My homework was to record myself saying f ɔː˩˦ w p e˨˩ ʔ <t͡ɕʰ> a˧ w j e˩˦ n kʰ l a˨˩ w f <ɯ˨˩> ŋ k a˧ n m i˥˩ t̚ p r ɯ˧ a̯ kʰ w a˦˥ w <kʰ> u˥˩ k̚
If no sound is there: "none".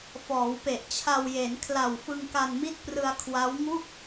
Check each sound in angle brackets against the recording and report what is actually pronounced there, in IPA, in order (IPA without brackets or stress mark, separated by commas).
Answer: t͡ɕʰ, ɯ˧, ŋ